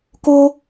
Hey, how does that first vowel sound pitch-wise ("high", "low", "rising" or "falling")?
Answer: high